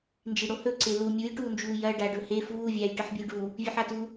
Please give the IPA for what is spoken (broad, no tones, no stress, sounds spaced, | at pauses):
n d͡ʒ i ɽ o h ɵ ǀ e l u mʲ u j ʈ uː n d͡ʒ uː j ɐ ɖ a ɖ ɵ h e f uː vʲ aː j ʈ ɨ ħ bʲ ɨ j ɖ u | vʲ ʉ ħ a t u